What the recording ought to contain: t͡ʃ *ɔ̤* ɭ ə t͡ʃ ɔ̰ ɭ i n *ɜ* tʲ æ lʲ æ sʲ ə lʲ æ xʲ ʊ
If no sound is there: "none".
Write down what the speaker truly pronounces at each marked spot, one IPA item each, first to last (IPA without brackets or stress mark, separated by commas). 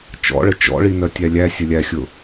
ɔ̰, ɜ